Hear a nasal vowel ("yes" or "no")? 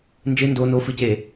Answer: no